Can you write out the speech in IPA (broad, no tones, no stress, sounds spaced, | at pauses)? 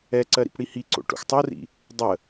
ɛ ǀ ɜ ɾ ḭ p ɽ i h i ǀ o̰ ʈ o̰ x tˤ o r ḭ | dˤ ə